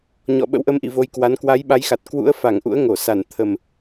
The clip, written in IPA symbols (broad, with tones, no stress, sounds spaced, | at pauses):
ɲ ɔ̰˧˨ ɓ ə̰˧˥ w ʔ ə˨˦ m ʔ ḭ˧˨ v o˧ j k w a˨˦ n k w a˨˦ j ɓ a˨˦ j x a˨˩ t̚ k w ṵ˧˥ ə̯ f a˧˩ ŋ ʔ ṵ˧˥ ə̯ ŋ o˧˩ s a˧˩ n t̪ʰ ə˨˩ m